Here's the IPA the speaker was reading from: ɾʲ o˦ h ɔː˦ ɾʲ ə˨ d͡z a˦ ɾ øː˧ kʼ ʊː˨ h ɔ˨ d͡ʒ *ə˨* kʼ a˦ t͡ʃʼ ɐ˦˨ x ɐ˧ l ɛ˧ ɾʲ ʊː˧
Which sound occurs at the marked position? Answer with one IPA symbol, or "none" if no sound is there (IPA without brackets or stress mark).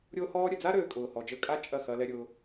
ə˧